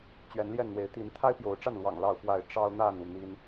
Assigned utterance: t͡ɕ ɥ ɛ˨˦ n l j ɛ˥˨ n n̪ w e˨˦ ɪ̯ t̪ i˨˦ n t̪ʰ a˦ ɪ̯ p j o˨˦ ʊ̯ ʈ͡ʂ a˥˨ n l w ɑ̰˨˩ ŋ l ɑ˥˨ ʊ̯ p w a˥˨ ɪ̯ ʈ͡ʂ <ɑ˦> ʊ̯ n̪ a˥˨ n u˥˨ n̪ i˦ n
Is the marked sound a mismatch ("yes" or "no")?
no